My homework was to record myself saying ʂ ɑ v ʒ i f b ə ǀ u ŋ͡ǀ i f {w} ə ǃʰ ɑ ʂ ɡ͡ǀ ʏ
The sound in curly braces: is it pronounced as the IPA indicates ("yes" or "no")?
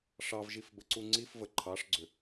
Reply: no